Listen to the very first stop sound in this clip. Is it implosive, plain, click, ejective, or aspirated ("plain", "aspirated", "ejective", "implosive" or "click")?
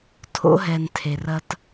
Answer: aspirated